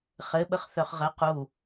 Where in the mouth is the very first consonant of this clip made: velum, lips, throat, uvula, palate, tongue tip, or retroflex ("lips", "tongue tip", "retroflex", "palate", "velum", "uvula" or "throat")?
uvula